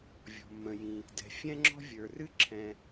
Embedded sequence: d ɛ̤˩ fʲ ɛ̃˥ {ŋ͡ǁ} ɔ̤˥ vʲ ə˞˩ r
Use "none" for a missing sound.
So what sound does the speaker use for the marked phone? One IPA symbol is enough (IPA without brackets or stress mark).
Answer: ŋ͡ǁ